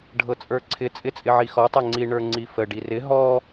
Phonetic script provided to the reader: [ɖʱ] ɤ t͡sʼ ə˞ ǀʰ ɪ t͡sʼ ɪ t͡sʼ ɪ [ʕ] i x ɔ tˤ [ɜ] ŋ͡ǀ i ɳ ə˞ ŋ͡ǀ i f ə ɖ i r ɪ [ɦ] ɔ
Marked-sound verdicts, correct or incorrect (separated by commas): correct, correct, incorrect, correct